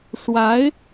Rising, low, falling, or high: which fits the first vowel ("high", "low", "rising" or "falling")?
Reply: rising